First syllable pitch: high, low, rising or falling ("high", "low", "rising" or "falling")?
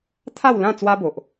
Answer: falling